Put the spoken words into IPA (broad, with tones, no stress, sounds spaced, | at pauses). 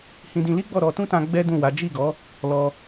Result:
h ĩ˧ d ĩ˧ l i˦ ɡ͡b ɔ˦˨ ɾ ɔ˧ t ũ˦ t ã˧ ɡ͡b ɛ˦ d ũ˦˨ w a˨˦ d͡ʒ i˦˨ ɡ ɔ˨˦ | l ɔ˧